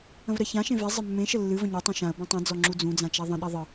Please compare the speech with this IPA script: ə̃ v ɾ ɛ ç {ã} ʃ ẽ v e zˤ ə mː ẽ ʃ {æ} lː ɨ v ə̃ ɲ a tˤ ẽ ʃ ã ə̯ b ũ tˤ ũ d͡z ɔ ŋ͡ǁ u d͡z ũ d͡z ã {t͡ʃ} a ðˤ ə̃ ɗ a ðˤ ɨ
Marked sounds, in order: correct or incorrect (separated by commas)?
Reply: correct, incorrect, correct